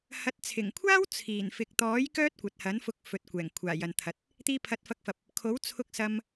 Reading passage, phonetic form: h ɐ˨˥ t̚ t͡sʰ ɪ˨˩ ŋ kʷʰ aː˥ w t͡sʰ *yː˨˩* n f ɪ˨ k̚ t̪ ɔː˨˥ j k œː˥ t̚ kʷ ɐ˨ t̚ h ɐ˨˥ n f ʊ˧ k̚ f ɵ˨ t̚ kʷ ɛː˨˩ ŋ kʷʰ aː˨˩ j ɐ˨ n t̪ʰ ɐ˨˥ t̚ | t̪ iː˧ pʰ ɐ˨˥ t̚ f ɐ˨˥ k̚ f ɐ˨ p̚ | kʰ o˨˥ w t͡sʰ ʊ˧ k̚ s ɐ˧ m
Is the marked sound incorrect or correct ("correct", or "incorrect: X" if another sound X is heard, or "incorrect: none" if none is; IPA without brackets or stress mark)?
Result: incorrect: iː˨˩